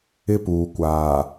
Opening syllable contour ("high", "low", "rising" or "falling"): high